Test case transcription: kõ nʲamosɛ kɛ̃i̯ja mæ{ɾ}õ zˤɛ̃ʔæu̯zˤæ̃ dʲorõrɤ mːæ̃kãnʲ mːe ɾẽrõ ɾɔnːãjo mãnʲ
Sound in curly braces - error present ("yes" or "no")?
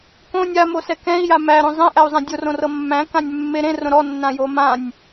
no